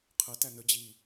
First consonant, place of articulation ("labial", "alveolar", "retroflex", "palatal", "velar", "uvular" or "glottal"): uvular